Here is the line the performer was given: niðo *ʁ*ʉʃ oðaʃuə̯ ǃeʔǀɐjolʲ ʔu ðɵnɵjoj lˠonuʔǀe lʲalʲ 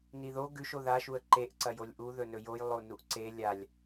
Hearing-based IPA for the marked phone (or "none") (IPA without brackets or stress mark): ɡ